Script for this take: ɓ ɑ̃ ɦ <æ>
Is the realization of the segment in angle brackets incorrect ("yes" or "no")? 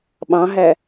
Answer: no